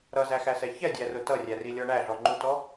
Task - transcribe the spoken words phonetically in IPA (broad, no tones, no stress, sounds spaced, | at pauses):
ɾ ʌ z æ x æ s ɛ ç ɛ dʲ æ r ʊ t ʌ rʲ æ r i lʲ ɔ ɳ æ ɮ ɔ ŋ͡ǃ u t ɔ